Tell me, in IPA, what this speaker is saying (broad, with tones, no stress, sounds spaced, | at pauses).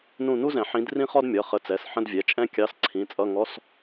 n ũ˦˨ n u˥ z ɛ̃˨˩˦ ħ ĩ˨˦ d r ĩ˥ χ ɔ˥ d mʲ ʌ˩˧˩ χ ə˨˦ t͡s ɛ˩˧˩ s ħ ə̃˧˥˧ d vʲ ɛ˩˧˩ t͡ʃʼ ɛ̃˥ kʲ ɑ˧˥˧ s ǀʰ ĩ˩˧˩ t͡sʼ ʌ˧˥˧ ŋ ɔ˧˥˧ s